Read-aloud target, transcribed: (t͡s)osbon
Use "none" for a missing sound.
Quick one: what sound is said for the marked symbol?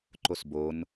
ǃ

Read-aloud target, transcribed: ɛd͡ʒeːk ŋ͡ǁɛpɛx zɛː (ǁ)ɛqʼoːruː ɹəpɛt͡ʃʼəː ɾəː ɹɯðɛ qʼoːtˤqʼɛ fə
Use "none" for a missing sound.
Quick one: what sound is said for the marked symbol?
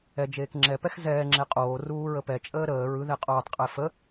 ŋ͡ǁ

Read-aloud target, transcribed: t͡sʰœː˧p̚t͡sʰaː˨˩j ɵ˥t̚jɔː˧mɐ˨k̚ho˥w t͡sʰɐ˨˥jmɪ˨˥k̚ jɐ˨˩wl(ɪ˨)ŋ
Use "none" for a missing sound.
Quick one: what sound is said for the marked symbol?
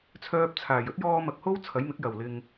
ɪ˨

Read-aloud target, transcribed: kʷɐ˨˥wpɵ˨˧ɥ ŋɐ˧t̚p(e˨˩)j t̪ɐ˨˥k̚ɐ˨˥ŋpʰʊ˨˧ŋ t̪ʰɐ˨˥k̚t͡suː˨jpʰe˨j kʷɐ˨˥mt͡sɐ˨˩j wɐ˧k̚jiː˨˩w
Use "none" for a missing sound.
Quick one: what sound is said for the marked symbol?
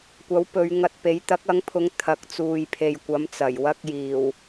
e˨˥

